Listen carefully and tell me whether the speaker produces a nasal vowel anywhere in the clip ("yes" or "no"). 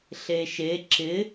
no